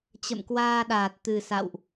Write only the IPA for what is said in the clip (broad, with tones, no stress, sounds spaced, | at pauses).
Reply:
t͡ɕ ə̰˧˨ m k w aː˧ ɗ aː˨˩ t̚ t̪ ɨ˨˩ s a̰˧˨ w ʔ